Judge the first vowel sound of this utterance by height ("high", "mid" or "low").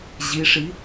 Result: high